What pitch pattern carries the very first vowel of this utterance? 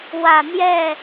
low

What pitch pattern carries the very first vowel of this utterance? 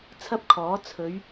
high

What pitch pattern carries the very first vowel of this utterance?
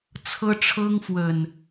high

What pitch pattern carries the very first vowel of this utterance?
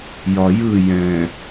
low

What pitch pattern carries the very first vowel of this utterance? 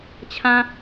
high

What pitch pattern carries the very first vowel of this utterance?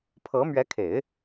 rising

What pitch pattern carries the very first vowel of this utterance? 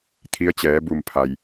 rising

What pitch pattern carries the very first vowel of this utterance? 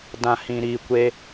low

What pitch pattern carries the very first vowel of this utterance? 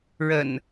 low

